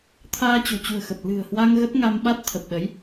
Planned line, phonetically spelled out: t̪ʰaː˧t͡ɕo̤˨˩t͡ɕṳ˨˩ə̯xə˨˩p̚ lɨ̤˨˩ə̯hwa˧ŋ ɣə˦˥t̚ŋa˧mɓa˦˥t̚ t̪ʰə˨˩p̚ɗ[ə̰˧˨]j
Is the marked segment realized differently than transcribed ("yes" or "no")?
yes